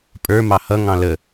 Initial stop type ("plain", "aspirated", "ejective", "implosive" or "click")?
ejective